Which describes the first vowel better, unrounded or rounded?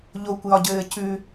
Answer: rounded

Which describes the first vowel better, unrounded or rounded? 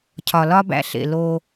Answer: rounded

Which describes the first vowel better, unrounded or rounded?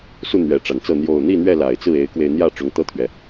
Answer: rounded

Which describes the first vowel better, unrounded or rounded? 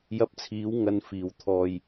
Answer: unrounded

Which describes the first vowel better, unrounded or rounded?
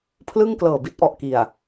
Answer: unrounded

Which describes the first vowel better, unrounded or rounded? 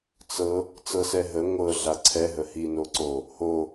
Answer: unrounded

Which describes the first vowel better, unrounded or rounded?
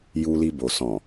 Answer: rounded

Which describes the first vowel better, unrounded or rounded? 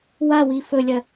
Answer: unrounded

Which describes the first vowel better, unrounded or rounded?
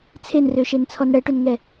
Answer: unrounded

